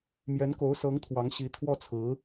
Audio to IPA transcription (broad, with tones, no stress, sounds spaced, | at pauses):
m j ɛ˧˥ n k o˧˥ ʊ̯ s ɤ˧˥ ŋ t̪ʰ w ɑ˧˥ ŋ ɕ i˧˥ t̪ʰ w ɔ˥˩ t͡sʰ ɹ̩˧˥